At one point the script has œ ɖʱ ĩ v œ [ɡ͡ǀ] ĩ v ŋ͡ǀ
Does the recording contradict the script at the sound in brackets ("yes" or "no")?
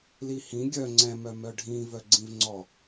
no